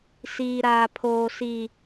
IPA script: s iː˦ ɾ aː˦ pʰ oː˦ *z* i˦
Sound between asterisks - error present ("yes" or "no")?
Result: yes